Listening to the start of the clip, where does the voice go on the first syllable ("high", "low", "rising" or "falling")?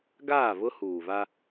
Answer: falling